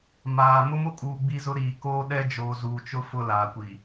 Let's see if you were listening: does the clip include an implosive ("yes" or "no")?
yes